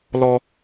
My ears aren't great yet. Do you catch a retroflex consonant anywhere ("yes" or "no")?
no